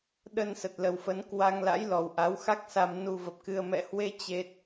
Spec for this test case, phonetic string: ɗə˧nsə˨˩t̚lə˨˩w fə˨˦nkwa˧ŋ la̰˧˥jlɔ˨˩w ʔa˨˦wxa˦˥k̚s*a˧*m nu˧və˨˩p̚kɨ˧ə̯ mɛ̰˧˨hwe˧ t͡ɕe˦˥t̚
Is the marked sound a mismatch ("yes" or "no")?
no